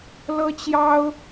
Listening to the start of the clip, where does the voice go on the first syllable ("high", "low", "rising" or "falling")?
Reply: high